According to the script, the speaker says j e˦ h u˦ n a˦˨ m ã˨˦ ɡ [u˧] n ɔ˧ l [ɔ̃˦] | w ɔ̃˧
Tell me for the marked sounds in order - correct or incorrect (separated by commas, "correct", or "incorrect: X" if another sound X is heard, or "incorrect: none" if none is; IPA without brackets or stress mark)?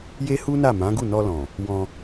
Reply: incorrect: u˦˨, incorrect: ɔ̃˨